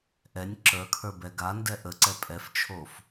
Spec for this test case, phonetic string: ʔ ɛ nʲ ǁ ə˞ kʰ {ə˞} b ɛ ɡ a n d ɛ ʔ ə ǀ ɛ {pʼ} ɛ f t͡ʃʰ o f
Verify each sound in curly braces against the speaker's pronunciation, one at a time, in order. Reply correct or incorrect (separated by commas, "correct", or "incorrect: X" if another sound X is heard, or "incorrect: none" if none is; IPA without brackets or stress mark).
correct, correct